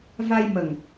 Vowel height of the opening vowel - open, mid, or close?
open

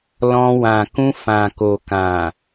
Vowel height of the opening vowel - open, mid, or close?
mid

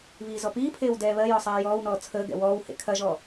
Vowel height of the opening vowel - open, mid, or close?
close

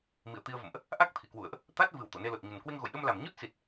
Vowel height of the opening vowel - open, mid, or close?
close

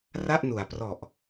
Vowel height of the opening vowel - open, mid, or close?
open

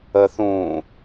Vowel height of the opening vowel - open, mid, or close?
mid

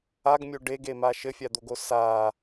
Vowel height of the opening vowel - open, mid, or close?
open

